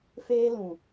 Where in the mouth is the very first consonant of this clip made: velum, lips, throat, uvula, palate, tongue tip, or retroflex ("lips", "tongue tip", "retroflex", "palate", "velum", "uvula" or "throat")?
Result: lips